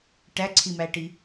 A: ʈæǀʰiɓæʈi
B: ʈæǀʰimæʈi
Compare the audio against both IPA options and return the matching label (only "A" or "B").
B